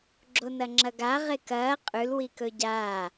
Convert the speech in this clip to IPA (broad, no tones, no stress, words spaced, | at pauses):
ɡ͡ǁonɐŋ͡ǁɐɡa ʁekɐː qʼʉl wikɵɟaː